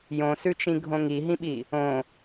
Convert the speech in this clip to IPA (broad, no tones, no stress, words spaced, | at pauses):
jõsʉt͡ʃĩɡʱõ ŋiɦĩɓi | õ